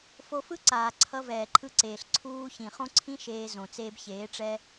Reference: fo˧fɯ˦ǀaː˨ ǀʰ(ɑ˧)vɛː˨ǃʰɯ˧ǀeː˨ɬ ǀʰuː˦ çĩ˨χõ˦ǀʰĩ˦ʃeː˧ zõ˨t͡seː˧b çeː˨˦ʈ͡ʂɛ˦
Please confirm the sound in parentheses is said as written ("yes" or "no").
no